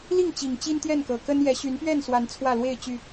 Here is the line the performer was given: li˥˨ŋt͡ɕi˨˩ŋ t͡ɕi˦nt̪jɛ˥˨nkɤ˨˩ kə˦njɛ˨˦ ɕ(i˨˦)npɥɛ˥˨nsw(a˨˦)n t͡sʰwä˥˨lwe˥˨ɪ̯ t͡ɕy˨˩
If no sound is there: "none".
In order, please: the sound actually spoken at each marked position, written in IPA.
y˨˦, a˨˦

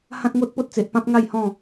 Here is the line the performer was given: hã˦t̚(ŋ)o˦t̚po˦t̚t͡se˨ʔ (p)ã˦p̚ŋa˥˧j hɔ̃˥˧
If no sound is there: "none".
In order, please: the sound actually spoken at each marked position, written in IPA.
ŋ, p

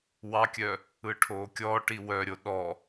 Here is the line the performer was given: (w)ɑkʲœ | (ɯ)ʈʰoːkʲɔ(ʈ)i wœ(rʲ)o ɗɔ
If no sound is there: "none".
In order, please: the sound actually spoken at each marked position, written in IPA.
w, ɯ, ʈ, ɾʲ

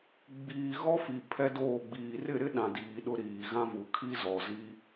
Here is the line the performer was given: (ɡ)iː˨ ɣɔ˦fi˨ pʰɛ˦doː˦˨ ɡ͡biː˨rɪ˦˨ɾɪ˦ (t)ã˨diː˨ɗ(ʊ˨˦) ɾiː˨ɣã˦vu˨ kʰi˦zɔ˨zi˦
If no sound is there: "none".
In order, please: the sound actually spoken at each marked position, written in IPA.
ɡ͡b, ɗ, ʊ˨˦

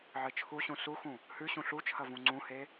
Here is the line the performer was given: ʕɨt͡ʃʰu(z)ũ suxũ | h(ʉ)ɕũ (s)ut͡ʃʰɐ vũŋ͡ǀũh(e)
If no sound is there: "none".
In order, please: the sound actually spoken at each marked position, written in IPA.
ɕ, ʉ, ɬ, e

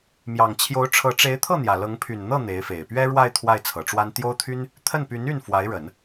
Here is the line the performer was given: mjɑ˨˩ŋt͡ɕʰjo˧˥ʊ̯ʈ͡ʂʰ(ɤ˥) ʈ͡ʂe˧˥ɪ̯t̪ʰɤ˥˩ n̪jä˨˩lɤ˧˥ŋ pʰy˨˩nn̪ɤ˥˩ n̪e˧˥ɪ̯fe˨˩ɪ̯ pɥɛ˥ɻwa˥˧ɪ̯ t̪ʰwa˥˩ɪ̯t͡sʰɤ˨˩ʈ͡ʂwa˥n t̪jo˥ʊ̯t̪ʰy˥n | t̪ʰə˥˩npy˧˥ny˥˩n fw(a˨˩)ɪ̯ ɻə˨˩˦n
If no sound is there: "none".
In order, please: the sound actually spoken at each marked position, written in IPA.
ɤ˧˥, a˧˥

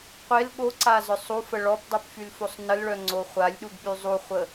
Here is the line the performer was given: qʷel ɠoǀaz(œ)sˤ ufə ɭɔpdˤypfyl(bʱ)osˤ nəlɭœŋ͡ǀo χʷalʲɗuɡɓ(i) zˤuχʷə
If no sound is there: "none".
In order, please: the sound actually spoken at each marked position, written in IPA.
œ, f, y

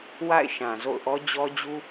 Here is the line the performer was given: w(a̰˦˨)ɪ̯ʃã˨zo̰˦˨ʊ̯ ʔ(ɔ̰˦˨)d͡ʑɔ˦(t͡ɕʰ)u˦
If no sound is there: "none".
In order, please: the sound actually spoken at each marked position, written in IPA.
a̰˦˨, ɔ˦, d͡ʑ

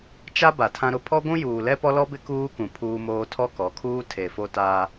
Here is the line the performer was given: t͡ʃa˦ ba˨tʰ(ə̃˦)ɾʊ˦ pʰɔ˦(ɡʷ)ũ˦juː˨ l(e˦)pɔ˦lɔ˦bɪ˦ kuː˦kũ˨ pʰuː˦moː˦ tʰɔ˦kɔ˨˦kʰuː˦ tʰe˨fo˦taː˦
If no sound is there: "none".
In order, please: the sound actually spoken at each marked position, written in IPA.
ã˦, ɡʷ, ɛ˦

